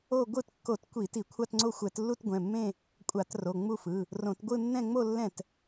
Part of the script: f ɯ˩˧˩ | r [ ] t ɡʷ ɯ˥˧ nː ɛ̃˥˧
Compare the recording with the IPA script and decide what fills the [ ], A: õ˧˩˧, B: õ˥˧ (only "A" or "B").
A